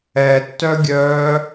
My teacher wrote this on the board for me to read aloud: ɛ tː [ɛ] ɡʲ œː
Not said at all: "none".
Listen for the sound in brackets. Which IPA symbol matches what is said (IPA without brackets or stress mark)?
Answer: œ